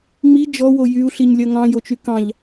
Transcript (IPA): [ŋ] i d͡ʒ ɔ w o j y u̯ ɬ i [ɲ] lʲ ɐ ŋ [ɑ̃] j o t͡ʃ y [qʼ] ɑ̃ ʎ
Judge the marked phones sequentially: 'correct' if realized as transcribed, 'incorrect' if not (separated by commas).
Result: incorrect, correct, correct, incorrect